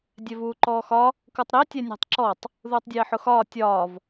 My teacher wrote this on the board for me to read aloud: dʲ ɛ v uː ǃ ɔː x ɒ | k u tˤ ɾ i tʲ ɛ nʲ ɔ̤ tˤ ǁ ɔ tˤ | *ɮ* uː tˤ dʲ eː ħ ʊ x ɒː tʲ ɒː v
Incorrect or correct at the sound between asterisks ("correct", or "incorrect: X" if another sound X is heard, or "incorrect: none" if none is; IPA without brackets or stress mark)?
incorrect: ð